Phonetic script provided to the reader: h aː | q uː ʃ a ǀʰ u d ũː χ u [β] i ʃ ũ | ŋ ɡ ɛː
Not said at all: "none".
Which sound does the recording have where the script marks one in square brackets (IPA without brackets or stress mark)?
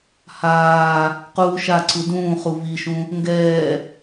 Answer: β